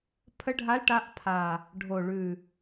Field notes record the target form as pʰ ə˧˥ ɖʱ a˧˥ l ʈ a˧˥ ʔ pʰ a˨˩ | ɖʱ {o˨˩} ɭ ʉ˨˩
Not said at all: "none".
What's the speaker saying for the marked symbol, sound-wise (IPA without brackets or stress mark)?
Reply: o˨˩